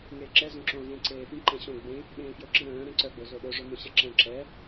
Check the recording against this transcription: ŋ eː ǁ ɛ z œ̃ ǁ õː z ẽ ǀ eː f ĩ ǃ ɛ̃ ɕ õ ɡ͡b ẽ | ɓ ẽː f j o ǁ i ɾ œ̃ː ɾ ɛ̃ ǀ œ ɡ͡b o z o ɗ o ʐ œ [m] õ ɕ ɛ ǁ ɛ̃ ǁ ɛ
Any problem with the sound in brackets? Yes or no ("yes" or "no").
no